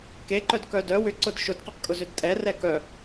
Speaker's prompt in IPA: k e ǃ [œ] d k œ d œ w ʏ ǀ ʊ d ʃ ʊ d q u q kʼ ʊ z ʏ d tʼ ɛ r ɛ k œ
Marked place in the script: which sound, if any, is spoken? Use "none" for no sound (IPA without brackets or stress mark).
œ